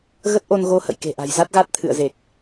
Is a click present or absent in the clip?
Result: absent